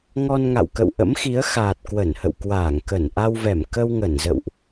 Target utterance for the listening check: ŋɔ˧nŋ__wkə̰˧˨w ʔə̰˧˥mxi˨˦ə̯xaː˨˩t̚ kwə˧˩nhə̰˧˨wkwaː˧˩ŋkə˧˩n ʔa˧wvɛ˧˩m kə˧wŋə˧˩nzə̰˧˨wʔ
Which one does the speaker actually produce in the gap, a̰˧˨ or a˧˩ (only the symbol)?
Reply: a̰˧˨